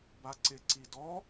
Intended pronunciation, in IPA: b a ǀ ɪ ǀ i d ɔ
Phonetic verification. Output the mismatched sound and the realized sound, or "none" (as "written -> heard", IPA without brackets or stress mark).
none